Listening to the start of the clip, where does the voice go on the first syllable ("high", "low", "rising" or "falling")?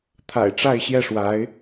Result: low